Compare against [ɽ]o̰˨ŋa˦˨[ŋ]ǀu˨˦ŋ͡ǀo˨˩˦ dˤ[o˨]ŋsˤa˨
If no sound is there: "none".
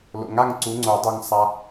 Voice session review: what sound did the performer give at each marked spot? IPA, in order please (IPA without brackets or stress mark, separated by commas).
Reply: l, ŋ, o˨